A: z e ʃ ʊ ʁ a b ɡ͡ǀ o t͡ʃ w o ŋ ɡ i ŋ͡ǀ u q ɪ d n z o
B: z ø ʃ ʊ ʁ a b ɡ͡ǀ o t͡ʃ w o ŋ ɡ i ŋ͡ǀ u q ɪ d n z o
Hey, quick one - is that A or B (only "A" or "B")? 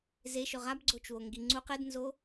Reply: A